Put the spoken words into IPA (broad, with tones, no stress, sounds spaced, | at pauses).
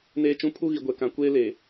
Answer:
n eː˦ t͡ʃ ũ˦ pʰ u˦ ɣ i˨ ɡʷ ɛ˨ k ã˨ kʷ eː˦ l e˨